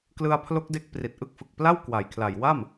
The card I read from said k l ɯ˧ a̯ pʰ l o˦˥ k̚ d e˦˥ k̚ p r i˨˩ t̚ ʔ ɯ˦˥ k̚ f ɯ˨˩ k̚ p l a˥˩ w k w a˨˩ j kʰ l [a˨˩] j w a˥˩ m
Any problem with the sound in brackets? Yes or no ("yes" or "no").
no